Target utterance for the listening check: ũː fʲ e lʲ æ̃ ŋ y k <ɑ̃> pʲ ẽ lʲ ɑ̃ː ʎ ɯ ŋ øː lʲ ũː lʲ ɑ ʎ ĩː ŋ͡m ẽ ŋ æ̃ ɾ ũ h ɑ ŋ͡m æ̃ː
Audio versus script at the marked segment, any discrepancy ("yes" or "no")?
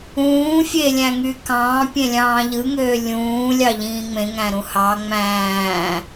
yes